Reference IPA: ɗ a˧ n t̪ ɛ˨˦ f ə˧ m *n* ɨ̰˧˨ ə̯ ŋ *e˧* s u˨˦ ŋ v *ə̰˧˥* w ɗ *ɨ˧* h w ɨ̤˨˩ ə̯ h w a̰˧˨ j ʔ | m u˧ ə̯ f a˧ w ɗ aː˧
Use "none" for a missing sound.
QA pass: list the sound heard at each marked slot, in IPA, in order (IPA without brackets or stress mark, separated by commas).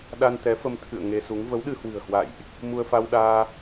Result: t̪ʰ, e˧, ə˨˦, ɨ˧